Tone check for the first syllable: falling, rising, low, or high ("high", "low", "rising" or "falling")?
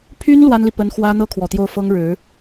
high